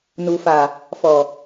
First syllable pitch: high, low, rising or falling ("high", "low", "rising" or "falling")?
low